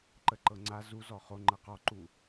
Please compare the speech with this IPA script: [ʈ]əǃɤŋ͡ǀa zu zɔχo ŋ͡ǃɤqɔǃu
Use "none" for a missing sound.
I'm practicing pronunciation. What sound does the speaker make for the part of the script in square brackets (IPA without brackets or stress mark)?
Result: ǃ